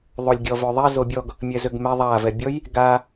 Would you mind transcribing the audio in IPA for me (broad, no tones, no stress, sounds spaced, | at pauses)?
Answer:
ðˤ o lʲ ɡʲ ɔ v ø ðˤ ɛ z o bʲ ɔ ɡ | mʲ ɛ z ø ɡ m ɛ ðˤ a v ɛ bʲ ɔ j | ɡ a